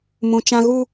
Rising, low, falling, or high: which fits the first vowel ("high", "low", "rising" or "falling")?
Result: high